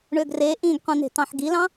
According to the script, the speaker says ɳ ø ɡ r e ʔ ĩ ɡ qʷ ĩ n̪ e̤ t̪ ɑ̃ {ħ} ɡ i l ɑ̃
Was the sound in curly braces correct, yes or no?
yes